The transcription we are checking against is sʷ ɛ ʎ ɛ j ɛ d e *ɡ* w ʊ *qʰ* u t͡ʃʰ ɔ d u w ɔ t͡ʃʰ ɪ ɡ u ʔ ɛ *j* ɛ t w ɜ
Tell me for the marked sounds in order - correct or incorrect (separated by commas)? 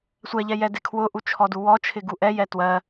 incorrect, incorrect, correct